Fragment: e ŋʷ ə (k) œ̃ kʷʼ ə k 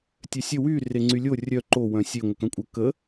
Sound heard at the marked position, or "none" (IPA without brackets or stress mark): k